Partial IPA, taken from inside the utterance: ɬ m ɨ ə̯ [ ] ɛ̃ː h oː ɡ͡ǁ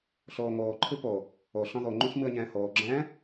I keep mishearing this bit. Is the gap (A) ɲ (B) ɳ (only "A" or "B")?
A